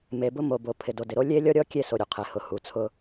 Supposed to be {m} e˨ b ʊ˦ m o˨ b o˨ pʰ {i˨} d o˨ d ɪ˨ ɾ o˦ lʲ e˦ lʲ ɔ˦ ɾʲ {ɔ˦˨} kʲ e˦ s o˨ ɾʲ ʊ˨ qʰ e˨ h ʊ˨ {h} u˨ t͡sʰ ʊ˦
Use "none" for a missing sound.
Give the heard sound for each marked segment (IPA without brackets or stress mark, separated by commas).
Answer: m, ɪ˨, ɔ˦, h